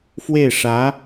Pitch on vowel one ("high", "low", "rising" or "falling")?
falling